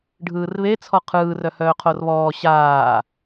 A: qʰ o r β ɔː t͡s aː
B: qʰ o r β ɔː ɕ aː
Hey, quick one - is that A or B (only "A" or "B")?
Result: B